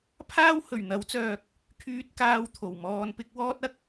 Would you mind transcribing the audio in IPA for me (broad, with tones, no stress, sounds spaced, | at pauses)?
pʰ aː˥ w h ɵ˨˩ ɥ n̪ ɐ˨˥ w t͡s œː˨ k̚ | kʰ yː˧ t̚ k aː˧ w t̪ʰ o˨˩ w m ɔː˧ n p ɪ˥ k̚ w ɔː˥ t̚ ɐ˧ k̚